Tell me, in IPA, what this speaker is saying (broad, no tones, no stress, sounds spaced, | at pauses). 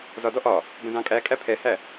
z ɒ d ɔ ʔ ɒ | b ə̃ z ɑ̃ kʼ æ kʼ æ pʰ ɛ h æ